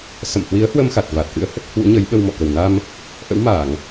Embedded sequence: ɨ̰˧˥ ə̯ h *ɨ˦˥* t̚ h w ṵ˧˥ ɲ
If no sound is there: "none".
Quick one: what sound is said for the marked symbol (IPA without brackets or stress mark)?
ə˦˥